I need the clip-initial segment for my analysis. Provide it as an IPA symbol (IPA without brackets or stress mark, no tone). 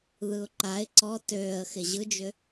ð